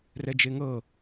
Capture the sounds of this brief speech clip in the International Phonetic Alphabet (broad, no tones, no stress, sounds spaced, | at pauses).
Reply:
r ɛ d͡ʒ e ŋ ɤ